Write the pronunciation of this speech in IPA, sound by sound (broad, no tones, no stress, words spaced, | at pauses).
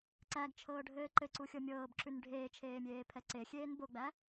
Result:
ǀæɡt͡ʃʰɤːɖʱɘː ǃɘǀuxʲɤ mʲɤːbǁʉn ɖʱeːt͡ʃʰeːmʲeːpʰɛ ǀexʲeːn boɡ͡bæ